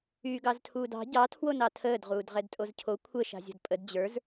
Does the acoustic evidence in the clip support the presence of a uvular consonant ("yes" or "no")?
yes